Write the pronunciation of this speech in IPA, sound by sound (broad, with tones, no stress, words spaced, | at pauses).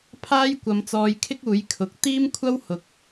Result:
pʰaː˥jkʷɐ˨˧m t͡sɔː˧jkʰɪ˥k̚ uː˨˥jkʰʊ˨˥k̚ t̪iː˥mkʷʰɐ˥w hʊ˨k̚